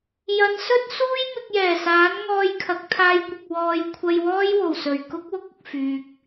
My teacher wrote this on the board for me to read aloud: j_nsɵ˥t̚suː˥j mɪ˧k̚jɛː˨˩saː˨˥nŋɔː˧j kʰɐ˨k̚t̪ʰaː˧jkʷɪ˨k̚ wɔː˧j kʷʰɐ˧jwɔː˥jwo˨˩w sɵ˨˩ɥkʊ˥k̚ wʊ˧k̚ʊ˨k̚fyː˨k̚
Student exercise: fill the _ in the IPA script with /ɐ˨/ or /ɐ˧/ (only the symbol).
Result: ɐ˨